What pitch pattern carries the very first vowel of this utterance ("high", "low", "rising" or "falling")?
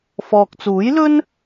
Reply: low